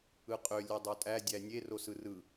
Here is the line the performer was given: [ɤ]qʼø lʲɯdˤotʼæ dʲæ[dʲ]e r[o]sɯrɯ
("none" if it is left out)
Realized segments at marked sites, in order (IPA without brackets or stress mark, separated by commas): ɯ, nʲ, o